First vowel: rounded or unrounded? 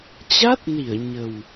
unrounded